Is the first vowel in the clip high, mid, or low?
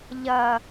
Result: low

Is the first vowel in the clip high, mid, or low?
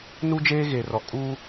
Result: high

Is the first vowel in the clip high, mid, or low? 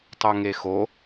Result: mid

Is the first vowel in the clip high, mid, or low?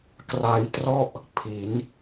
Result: low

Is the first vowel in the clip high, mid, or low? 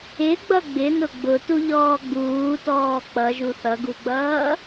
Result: high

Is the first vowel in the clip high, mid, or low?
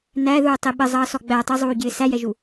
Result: low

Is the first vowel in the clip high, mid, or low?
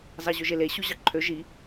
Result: low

